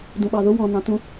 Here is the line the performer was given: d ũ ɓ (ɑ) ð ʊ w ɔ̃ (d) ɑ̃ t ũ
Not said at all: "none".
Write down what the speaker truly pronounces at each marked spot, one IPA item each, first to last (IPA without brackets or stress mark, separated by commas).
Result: ɑ, n